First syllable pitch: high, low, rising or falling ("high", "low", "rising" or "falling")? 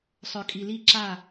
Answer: low